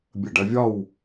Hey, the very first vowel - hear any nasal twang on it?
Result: no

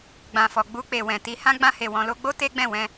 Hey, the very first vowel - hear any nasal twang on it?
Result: yes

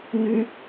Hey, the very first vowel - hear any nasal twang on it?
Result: no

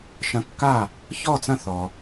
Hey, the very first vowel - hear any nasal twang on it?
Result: yes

